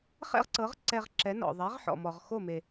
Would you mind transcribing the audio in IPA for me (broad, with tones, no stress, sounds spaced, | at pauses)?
χ ɛ̰˥ ʁ ǀ ɤ˩˥ ʁ ǀ ɛ˧ ʁ ǁ ɛ˩˥ n ɔ̰˩ ðˤ ɛ˩˥ ʁ ħ ɔ̰˩ m ɔ˩ ʁ x o˥˩ m e˩